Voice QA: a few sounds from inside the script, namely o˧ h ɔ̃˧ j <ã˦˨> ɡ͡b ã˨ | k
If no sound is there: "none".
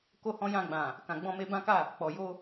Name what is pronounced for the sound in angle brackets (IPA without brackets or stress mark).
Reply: ã˧